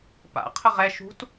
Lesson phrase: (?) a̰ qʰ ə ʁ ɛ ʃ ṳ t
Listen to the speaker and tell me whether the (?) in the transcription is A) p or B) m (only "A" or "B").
A